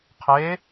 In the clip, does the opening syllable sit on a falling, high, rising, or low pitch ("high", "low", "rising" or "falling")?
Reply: rising